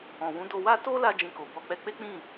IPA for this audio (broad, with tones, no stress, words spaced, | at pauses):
ɔ̃˨wũ˨˦ do˧wa˦ to˦ la˧ d͡ʒĩ˧ko˨ bɔ˧k͡pɛ˦ k͡pe˦k͡pĩ˦˨